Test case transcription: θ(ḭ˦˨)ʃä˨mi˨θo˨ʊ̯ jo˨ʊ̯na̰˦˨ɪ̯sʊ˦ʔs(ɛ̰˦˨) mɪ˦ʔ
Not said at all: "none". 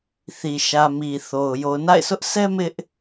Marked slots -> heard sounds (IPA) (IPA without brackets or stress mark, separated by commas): i˨, ɛ˦